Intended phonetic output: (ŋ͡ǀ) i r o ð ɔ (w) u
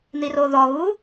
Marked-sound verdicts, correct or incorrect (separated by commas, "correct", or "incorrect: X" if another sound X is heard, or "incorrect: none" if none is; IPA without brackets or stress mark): incorrect: n̪, incorrect: ɣ